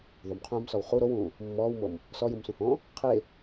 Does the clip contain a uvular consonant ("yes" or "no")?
yes